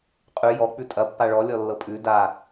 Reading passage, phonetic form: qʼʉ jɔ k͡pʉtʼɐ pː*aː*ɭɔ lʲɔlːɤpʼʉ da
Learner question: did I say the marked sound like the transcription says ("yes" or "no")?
no